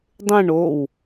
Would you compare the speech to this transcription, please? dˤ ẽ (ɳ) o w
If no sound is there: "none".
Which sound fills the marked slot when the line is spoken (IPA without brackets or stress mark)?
ɳ